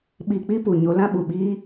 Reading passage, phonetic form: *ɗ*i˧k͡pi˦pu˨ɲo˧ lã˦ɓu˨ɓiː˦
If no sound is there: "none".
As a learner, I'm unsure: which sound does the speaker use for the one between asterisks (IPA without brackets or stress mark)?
ɓ